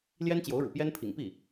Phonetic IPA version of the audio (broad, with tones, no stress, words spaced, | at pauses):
ljɛ˥nt͡ɕjo˧˥ʊ̯ɻṵ˨˩pjɛ˥n pʰḭ˨˩ŋpi˥˩